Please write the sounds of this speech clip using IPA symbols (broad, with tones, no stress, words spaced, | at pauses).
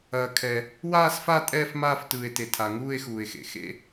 ɐː˩ kʰɛ˩ | waː˥˨sfa˥˨ tʼɛː˥˨fmaː˥˨ftɯː˩e̯te˩ tʰa˩ŋuː˥˨e̯xuː˩e̯xḛ˩ xḛ˥˨